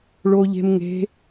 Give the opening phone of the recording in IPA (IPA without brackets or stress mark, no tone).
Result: ɭ